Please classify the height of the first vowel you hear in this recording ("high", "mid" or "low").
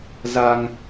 low